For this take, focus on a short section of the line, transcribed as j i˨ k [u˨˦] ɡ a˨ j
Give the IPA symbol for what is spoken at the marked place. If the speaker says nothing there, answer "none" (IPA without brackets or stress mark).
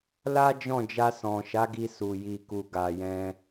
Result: u˨